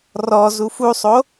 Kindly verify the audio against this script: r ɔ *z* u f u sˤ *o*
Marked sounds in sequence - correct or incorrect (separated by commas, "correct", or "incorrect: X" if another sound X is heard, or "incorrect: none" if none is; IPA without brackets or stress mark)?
correct, correct